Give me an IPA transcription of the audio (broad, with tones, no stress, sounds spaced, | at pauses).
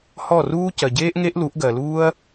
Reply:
h ɔ˦˨ r uː˦ c ɜ˨ ɟ eː˦ ʔ ŋ e˦ ʔ l u˨˦ ʔ ɡ ɜ˨ l uː˦ ɐ̯